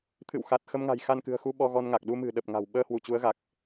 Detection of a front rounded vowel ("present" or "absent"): absent